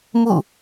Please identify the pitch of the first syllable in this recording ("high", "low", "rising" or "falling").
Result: falling